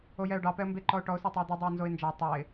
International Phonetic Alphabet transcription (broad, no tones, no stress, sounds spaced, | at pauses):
o j ɛ ʊ̯ ɖ ɑ p ɛ ə̯ m b e ǃ ɔ ʊ̯ ʈ ɔ ʊ̯ s ɔ tˤ ɛ ə̯ d̪ u dˤ e ə̯ n z o ɪ̯ n d͡ʒ ɑ tˤ ɑ ɪ̯